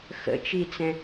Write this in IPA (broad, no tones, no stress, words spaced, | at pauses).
xə̰t͡ʃit͡sɛ̃